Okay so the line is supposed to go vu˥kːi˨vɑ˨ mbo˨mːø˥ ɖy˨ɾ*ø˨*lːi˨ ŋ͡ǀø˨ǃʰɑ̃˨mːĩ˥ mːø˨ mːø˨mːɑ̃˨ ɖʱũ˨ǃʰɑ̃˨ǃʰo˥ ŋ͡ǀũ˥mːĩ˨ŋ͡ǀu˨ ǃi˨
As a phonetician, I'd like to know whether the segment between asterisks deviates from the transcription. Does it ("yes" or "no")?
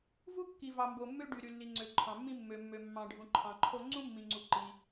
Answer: yes